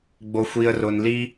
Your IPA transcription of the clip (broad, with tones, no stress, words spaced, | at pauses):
ɡ͡bo˧xʷi˧ə̯rʊ˧n li˦